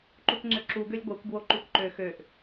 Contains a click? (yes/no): yes